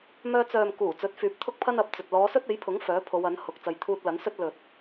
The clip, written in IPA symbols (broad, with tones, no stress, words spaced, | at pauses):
mœː˧t͡sœː˨m kuː˨˩ t͡sɵ˨˥t̚fyː˨˥p̚t̪ʰʊ˥k̚ pʰɐ˥nɐ˨˥p̚t͡sɵ˨t̚ lɔː˨˧sɵ˥t̚e˨˥jpʰʊ˨˥ŋ fœː˨˥pʰo˨˧w ɐ˨˥nhʊ˨k̚ t͡sɐ˨jt̪ʰuː˧t̚lɐ˨˥nsɵ˥t̚ lɵ˨t̚